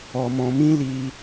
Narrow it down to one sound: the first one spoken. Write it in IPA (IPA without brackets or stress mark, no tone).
ɔ